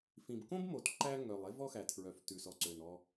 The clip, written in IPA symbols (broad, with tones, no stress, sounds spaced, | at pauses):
f ĩ˩ b k õ˥ b m o˩ t ǃ æ˥ ŋ œ˩ lˠ e˥ v ɔ˥ x æ˩ tʰ ɹ œ˩ f t ʉ˩ s ɔ˩ ǀ ø˩ n ɔ˩